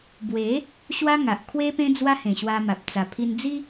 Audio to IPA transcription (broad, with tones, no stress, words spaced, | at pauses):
bwe˨˦ | ɕwa˦ŋa˨ʔ kʰwe˦pẽ˦ d͡zwa˦hẽ˨˩ɕwa˧ma˨p̚ t͡sa˨˩pʰi˧nd͡zi˦